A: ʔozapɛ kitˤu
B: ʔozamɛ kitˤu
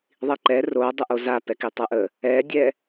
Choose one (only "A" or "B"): A